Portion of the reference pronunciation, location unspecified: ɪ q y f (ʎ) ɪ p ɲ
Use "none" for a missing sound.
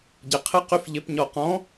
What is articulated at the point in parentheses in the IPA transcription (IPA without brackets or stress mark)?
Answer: ʎ